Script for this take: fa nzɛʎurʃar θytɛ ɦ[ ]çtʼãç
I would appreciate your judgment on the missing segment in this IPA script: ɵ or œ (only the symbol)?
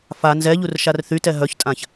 œ